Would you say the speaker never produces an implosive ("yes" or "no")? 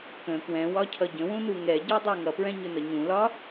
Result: yes